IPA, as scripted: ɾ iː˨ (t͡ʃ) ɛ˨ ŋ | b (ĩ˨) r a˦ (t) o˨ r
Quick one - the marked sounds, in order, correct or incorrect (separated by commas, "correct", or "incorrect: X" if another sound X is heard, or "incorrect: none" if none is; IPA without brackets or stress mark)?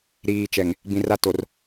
correct, correct, correct